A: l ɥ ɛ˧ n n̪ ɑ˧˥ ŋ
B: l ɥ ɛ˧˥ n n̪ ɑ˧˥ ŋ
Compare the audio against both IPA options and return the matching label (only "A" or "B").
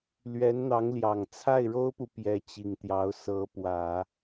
B